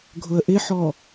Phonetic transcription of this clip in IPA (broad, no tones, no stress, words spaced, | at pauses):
ɡʱʊə̯ʔɪħɔ